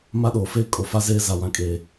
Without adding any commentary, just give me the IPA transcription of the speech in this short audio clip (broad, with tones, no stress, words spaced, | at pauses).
ma˦ɗoː˨feː˦ kʼo˨fa˦zeː˦ za˨wã˨kʼe˨